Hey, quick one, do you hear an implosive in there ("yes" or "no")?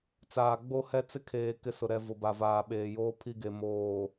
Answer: yes